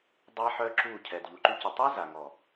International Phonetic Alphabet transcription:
dˤ a˧ ħ œ˧ ǁ u˦˨ cʰ ɛ˨ d ʎ u˨ ǃ y˧ c ə˨ tˤ ɛ˦ z a˨ ŋ ɔ˨

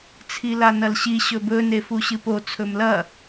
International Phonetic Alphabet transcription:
t͡sʰ i l a n ɐ l ɕ i ɕ ɵ b ɵ n e f u ɕ ɨ p o t͡sʰ ɵ m l ɐ

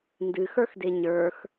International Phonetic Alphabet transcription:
n d ɨ x ə˞ x d e ɲ ə˞ x

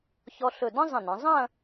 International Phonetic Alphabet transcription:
ç ɔ˧ ɬ ɵ˧˩ d ə̃˥ zˤ ə̃˧˩ n ə̃˩˧ zˤ ɐ̃˥˧

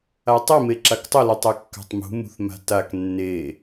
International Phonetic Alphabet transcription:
a tˤ e m e ǁ a k tˤ ə l u tˤ e kː a̤ tˤ m ṳ m ṳ θ m a̤ t a k nː e

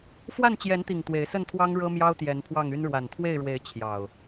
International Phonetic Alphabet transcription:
f w a˥˨ n t͡ɕ j ɛ˨˦ n t̪ i˨˩ ŋ t̪ w e˨˦ ɪ̯ s ə˥˨ n t̪ʰ w ɑ˦ ŋ ɻ ɤ˦ m j ɑ˦ ʊ̯ t̪ j ɛ˨˦ n pʰ w ɑ˥˨ ŋ y˦ n ɻ w a˨˩ n t̪ʰ w e˥˨ ɪ̯ ɻ w e˨˦ ɪ̯ t͡ɕʰ j ɑ˨˩ ʊ̯

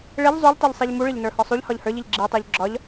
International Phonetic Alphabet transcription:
ɭ ɪ ʎ zˤ u ʎ tˤ i ʎ sˤ i ʎ m u ɭ ɪ ʎ n ə˞ h ɒ sˤ u ʎ h ɒ ʎ h ə˞ ʎ i ʎ ɡ͡ǁ i tˤ ə˞ ʎ ɡ͡ǁ ɒ ʎ

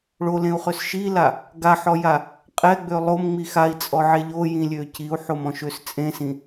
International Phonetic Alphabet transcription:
ɭ o l ẽ u̯ χ ø s ʃ i l a | ɡ a ħ ɔ j a | qʼ ɛ ɡ͡b ø lˠ o m ŋ͡m i x a i̯ t͡sʼ ɔ ʕ e ʎ o j ĩ lʲ ø c i u̯ ħ o m ɔ̃ ʃ ø s t͡sʼ ẽ s ĩ

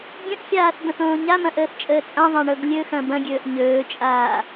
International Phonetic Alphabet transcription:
ɡʲ ə̃ ʔ xʲ aː θ b ə̃ θ õː ɲ a m ɐ̃ ʔ əː θ t͡ʃʼ əː t͡sʼ ã ðˤ ã ɳ ɤ ɡ lʲ ɵ x ɐ̃ b ɐ̃ ɡʲ ɵː ʔ ɲ ɵː t͡ʃʼ aː

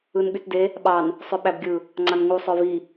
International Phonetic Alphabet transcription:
ɯ n ɓ y t d e | ɓ ɑ n | sˤ ø ɓ æ b ɡʲ ɯ | ŋ͡ǀ ɑ n ŋ u sˤ ø v i

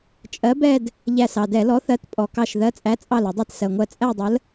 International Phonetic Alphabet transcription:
t͡ʃʼ ɜ˨˥ b ɛ˥˧ d | ʎ æ˧˩ s ɑ˩ d ɛ˧˩˧ l ɔ˨˥ θ ɜ˨˥ t pʼ ɔ˩ k ɑ˧˩ ʃ ð ɜ˨˥ t͡sʼ æ˨˥ t͡sʼ ɑ˧˩ l ə˧˩˧ dˤ i˧˩ t s ɜ˩ ŋʷ ɜ˧˩ t͡sʼ æ˥˧ dˤ ə˨˥ l

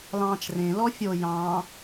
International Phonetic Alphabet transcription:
l ɑ̃ː t͡ʃ r ẽ l ɔ fʲ o j ɑ̃ː

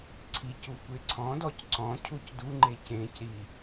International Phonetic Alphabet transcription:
ǀʰ i c u kʷ e ǀʰ ɔ̃ d ɔ c ǀ ɔ̃ cʰ u c d u ŋ͡ǃ e c ẽ c ɾ i

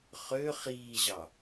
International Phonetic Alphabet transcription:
χ ø χ iː ʑ ɑ

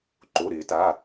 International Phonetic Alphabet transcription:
ǃ o˩˧˩ ɾ ɪː˨˩˦ t a˩˧˩

